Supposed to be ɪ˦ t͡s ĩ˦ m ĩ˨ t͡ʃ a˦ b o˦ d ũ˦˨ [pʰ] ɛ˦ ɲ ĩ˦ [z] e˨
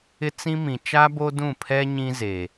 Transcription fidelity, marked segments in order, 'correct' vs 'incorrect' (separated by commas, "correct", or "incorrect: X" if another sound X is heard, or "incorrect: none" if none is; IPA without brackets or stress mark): correct, correct